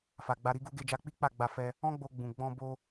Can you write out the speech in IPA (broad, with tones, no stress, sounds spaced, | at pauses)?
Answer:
f a˨ ɡ͡b a˧ ɾ i˦ ɡ u˦ ɡ e˧ d͡ʒ a˧ k͡p i˦ k͡p a˦˨ ɡ͡b a˧ f ɛ˧ | ɔ̃˦ ɡ͡b o˧ ɡ͡b ũ˨ ɡ͡b ɔ̃˧ b o˧